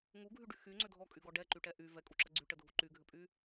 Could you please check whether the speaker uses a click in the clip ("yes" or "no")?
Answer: yes